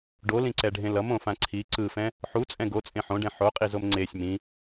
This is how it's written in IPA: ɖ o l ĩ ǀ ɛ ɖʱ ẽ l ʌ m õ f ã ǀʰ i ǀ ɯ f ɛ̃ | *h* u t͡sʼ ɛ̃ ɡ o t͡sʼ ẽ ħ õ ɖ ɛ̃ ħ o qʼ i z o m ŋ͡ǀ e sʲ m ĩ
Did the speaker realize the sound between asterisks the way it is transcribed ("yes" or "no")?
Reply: no